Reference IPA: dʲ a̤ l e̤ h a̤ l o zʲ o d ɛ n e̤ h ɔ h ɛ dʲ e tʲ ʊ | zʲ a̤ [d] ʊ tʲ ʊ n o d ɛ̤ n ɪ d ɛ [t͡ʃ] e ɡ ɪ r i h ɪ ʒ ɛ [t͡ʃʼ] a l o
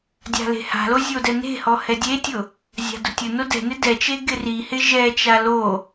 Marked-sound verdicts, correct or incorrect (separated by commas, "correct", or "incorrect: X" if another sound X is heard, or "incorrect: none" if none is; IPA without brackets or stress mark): correct, correct, incorrect: t͡ʃ